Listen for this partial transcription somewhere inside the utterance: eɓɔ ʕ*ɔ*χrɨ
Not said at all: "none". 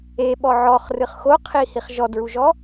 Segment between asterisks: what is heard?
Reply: ɔ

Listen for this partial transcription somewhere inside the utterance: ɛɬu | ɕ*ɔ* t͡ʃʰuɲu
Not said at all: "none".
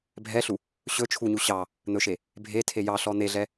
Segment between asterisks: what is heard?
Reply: ɵ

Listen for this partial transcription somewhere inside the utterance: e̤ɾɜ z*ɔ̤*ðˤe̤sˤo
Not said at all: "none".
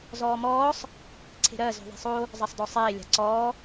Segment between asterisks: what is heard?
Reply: ɔ̤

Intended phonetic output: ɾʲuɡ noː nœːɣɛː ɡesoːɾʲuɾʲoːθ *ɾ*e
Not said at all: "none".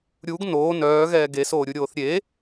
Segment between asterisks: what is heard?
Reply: ɾʲ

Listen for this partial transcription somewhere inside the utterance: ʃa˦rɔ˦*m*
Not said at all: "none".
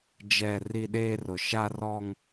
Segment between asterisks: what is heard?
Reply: ŋ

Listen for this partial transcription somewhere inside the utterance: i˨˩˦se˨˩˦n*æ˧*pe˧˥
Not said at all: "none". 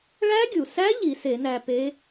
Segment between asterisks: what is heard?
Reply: æ˧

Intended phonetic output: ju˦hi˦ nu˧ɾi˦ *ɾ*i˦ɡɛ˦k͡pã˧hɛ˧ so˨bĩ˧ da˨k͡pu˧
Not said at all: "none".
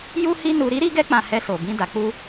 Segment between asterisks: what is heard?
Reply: ɾ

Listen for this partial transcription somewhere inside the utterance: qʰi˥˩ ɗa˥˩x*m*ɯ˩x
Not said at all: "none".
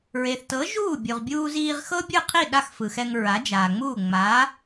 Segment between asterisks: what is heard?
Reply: f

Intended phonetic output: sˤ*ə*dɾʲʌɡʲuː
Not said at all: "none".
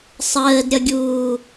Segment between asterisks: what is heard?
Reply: əː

